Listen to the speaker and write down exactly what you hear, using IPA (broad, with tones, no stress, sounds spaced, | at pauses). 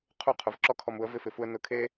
qʰ u˦˨ qʰ ʊ˨˦ v ǁ ɔ˦ kʰ ɔ˧ m u˨˦ ə̯ v ɪ˦ f ɪ˧ f u˦ ə̯ n ʊ˧ kʰ e˦